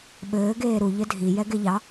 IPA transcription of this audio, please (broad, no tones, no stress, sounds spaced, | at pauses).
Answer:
ɓ ɘː ɡ eː ɾ u ʎ ɘ dʱ i j ɛ ɡ e ʎ ɑ